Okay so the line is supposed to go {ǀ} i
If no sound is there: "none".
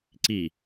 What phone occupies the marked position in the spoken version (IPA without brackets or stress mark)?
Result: ǀ